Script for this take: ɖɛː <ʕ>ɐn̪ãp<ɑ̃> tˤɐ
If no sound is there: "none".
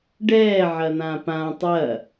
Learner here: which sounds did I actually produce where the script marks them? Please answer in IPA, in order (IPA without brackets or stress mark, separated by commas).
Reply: ʕ, ã